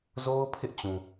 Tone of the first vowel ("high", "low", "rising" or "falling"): high